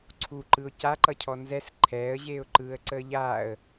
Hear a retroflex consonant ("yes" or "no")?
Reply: no